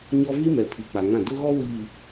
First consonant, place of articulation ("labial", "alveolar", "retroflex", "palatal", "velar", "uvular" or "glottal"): palatal